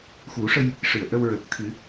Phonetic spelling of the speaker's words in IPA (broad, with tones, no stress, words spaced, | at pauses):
xu˨˩˦ʂə˧j | ʂɨ˨˩˨ə̯ ʔə˧wɹəː˨˩k̚ t̪ʰɨ˨˩˦